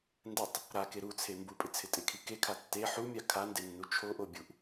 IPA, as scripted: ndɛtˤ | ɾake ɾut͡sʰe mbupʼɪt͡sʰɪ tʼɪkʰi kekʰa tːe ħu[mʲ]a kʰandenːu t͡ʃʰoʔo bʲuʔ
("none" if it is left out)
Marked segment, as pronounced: mʲ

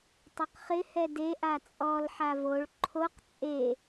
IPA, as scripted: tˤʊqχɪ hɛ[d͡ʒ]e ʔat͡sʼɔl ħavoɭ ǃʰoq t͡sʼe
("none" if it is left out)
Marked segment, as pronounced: d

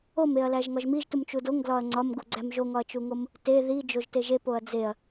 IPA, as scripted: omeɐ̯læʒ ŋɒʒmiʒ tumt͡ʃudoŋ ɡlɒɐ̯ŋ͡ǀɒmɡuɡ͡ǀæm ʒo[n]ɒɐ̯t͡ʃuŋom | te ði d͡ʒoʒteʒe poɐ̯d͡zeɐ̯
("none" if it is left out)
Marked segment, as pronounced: ŋ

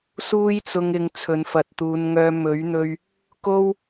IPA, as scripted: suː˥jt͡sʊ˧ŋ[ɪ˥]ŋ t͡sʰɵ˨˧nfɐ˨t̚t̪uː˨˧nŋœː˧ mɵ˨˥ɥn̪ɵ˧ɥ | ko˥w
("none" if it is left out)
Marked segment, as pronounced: ɪ˨˧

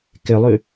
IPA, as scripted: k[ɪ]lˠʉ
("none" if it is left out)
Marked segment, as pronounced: ɪ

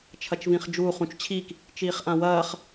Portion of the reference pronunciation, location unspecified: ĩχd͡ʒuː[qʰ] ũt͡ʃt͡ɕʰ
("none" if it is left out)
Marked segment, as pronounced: χ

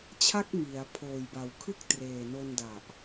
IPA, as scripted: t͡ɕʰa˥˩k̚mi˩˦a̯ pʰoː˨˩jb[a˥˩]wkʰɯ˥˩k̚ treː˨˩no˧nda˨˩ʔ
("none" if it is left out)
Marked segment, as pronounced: a˨˩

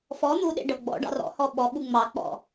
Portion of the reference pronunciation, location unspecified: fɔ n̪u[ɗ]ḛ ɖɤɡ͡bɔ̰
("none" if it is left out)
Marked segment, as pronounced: ɗ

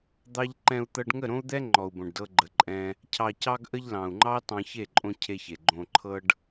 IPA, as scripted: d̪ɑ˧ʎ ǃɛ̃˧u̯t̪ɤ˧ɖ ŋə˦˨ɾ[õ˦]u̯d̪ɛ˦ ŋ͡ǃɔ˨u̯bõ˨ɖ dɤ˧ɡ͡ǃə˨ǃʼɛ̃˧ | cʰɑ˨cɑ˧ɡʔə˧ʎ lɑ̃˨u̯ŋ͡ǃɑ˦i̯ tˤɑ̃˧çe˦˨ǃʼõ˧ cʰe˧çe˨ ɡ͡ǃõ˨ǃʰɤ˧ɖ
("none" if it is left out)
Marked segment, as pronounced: õ˦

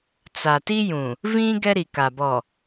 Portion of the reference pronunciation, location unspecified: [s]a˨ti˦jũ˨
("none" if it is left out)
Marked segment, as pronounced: t͡s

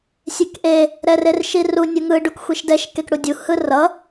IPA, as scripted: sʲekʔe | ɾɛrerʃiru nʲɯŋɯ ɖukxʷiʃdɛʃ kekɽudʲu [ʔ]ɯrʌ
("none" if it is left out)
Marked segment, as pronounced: h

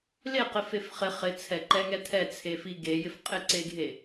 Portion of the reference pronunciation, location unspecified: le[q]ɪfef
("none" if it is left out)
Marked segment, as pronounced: q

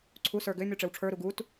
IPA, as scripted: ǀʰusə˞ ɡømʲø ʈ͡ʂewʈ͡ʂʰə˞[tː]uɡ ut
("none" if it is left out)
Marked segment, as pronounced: ɾ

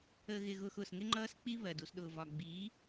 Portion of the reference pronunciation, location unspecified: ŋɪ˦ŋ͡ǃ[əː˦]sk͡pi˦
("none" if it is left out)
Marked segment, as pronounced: ʌː˦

